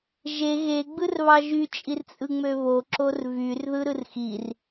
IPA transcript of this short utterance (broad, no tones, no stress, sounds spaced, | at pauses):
ʒ e ɣ e ɡ͡b ɯ r β ɑ ʒ y t͡ʃʼ i r t͡sʼ ɯ ŋ͡m ø β o ǁ o r v y r ð ɯ ɾ ɯ r x i r